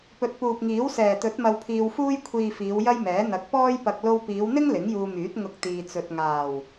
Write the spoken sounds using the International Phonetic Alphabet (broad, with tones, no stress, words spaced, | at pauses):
pɵ˨t̚puː˨p̚ŋiː˨˥w sɛː˨˩t̪ɵ˨˥t̚ mɐ˧wpʰiː˧wfuː˥j kʷʰiː˨ fiː˨˧wjɐ˥jmɛː˨˥ n̪ɐ˨˥k̚pɔː˥jpɐ˧k̚ lo˧wpiː˨˧wn̪ɪ˥ŋ lɪ˨˥ŋjuː˧myː˨˥t̚ ŋʊ˧k̚ t̪iː˧t͡sɵ˧t̚ ŋaː˨˩w